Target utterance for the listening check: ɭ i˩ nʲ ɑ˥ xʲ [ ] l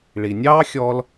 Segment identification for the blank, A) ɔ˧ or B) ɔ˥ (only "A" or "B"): A